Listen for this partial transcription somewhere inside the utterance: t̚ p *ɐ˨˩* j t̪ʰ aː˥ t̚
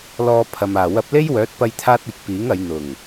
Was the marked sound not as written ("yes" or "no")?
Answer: yes